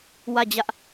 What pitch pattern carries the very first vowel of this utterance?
falling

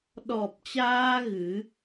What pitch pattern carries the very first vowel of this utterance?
low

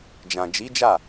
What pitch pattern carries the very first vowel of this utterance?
low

